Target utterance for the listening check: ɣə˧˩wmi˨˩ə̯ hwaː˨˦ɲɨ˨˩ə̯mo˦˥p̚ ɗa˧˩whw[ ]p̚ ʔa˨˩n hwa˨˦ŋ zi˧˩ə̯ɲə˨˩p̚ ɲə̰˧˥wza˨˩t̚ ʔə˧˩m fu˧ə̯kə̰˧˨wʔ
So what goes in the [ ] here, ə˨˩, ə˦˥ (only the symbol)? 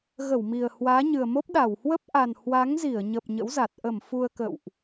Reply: ə˦˥